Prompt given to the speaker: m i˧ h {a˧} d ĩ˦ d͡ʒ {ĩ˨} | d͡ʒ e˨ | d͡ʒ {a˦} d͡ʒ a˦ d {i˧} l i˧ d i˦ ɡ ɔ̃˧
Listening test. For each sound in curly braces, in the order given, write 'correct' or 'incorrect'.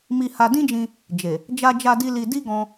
correct, incorrect: ĩ˧, correct, incorrect: i˦

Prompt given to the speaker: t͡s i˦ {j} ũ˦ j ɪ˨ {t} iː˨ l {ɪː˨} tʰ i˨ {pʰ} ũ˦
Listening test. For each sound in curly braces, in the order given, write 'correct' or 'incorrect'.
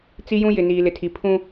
correct, incorrect: n, incorrect: ɪ˨, correct

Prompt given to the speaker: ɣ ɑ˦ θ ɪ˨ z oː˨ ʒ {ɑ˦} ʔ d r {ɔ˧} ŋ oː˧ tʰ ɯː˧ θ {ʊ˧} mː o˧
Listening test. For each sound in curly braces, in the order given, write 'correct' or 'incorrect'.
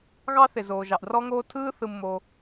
incorrect: ɑ˨, correct, incorrect: ɯ˧

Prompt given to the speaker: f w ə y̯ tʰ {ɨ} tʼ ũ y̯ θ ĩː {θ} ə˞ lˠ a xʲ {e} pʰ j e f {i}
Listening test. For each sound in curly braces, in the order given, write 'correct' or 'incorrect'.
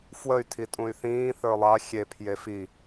incorrect: i, correct, correct, correct

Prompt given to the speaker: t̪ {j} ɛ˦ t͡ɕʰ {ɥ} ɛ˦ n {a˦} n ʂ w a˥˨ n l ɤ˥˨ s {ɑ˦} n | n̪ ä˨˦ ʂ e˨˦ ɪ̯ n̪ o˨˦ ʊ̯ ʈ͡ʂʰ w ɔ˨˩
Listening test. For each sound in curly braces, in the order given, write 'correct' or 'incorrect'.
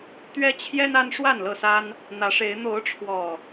incorrect: ɥ, incorrect: j, correct, incorrect: a˦

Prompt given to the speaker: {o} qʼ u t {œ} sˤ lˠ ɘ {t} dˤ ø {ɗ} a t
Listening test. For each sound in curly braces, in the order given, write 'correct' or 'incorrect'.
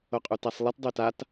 correct, incorrect: æ, correct, incorrect: t

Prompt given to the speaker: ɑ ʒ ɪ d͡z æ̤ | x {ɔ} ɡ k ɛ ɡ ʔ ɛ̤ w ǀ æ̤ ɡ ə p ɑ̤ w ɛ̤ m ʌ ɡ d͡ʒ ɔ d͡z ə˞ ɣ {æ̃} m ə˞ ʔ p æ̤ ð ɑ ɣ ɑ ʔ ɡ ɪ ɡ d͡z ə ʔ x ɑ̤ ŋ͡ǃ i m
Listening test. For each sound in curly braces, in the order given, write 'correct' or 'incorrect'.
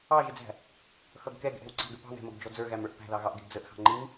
incorrect: ʌ, incorrect: æ

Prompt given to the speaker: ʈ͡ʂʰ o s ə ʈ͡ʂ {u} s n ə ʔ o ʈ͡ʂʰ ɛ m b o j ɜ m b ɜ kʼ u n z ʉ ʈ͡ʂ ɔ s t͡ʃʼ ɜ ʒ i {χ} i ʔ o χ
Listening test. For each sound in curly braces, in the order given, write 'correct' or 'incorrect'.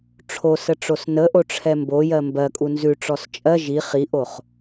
incorrect: o, correct

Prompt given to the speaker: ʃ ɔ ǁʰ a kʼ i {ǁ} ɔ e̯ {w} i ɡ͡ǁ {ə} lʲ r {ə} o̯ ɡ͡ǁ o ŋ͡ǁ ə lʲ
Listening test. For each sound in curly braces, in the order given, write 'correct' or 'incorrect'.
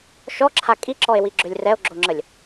correct, correct, incorrect: ø, incorrect: ɛ

